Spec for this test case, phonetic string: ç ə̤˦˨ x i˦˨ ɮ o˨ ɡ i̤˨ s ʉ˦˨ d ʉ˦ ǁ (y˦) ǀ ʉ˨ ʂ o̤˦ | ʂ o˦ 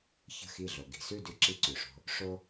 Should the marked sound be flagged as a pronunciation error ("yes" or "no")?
yes